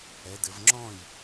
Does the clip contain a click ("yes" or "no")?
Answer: yes